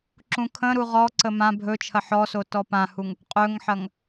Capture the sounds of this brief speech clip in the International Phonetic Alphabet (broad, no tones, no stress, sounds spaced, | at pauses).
ǁ ũ kʰ ə̃ ɾ u ʁ ɔ ǀ ə m ã bʱ ɵ t͡ʃʰ ɐ ħ ɔ s o t ɔ p ã h u ŋ | qʼ ɵ ŋ ħ ɐ ŋ